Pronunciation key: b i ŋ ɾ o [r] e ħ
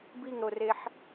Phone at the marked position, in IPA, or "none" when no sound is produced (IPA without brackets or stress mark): r